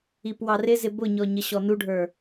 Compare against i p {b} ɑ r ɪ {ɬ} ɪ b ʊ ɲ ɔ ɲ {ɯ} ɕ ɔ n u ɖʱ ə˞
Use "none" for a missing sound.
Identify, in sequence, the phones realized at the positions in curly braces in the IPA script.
w, z, ə

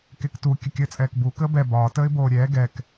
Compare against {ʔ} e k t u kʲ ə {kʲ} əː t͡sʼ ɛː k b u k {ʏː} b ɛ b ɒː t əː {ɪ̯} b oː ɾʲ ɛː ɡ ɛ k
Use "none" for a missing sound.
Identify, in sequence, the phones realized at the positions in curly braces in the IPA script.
k, kʲ, əː, ɪ̯

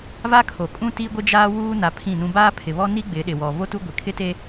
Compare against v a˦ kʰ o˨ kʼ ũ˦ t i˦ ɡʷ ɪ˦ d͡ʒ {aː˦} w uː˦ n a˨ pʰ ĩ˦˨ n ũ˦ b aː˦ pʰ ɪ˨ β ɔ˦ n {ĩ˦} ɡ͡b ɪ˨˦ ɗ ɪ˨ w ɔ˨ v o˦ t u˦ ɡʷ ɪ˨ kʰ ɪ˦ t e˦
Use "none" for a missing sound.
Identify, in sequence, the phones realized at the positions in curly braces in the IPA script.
aː˦, i˦

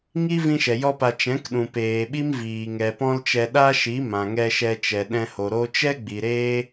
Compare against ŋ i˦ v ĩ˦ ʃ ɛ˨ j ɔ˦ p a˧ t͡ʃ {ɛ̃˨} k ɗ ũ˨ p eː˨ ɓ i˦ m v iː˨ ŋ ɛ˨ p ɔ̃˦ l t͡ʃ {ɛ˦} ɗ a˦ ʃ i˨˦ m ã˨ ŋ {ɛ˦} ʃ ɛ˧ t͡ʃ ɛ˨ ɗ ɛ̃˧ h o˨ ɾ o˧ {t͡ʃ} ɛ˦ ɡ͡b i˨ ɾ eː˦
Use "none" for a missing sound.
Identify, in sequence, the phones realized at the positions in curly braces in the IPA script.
ɛ̃˨˦, ɛ˧, ɛ˧, t͡ʃ

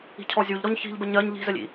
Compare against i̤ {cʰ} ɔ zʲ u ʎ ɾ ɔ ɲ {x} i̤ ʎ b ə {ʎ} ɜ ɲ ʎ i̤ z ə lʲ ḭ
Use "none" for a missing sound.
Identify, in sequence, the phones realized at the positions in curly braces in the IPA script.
cʰ, ç, ɲ

